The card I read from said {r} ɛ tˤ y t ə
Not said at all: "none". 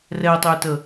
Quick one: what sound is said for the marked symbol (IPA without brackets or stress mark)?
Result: r